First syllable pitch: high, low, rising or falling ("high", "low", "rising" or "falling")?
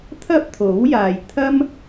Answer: high